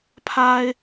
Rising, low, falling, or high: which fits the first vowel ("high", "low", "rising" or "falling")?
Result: high